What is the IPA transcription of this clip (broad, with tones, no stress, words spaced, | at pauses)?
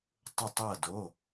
tˤə˥˧tˤɤ˥˧do˧˥˧